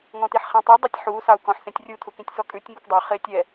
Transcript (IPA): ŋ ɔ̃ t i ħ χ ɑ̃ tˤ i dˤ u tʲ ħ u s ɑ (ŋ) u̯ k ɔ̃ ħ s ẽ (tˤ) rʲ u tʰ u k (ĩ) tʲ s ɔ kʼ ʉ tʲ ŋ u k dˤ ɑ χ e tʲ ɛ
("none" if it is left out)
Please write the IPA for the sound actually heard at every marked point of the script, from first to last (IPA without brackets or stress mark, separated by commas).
none, tʲ, ĩ